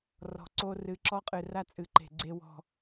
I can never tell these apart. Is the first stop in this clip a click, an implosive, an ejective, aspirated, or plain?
click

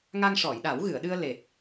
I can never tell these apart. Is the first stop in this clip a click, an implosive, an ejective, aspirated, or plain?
implosive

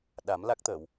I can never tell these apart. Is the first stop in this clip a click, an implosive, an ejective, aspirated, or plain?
implosive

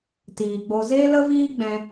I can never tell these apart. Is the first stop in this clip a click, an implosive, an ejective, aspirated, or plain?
plain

